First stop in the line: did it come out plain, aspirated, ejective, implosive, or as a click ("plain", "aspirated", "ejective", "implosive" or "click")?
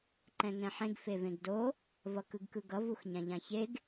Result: click